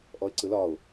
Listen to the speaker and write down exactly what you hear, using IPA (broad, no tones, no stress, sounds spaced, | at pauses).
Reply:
ʔ ɔ ɪ̯ ǀ ɯ l ɒ ʊ̯